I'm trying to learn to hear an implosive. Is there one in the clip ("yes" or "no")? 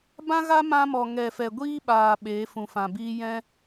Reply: yes